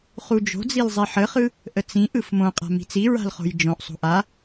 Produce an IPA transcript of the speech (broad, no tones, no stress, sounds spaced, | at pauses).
χ u d͡ʒ o̤ d͡z i l zˤ i ħ ə χ ɯ | ʔ ə t͡s ĩ ʔ ɯ f m õ qʼ a̤ m i̤ t͡s i ɹ a̤ l χ o̤ j d͡ʒ õ ʔ sˤ o̤ ʔ a